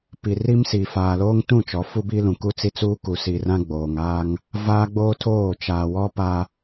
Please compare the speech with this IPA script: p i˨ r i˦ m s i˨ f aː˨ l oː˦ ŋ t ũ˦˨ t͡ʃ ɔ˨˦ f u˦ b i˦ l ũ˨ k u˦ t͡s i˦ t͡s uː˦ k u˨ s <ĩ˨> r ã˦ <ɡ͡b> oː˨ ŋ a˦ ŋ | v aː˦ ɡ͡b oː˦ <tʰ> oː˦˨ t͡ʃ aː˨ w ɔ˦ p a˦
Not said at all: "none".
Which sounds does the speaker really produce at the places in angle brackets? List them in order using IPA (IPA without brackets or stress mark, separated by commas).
i˨, ɡ͡b, tʰ